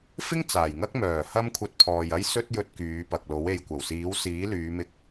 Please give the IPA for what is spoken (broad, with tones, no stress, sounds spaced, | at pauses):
f ɪ˥ ŋ t͡s aː˨˩ j ŋ ɐ˥ k̚ m œː˨˩ h ɐ˧ m kʷʰ ɐ˧ t̚ pʰ ɔː˨ j ɐ˥ j s ɵ˥ t̚ j ɵ˧ t̚ k yː˨˧ p ɐ˨ k̚ l o˨˥ w e˨ j kʷ ɐ˨˩ w s iː˨˥ w s iː˨˥ l yː˨˧ m ɪ˧ k̚